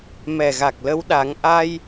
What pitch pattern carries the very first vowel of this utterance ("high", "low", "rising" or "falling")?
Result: low